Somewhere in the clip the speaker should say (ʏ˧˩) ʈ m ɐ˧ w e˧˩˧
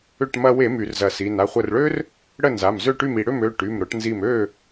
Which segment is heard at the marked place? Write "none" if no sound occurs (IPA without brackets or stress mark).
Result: ʏ˧˩